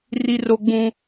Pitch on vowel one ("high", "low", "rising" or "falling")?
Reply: high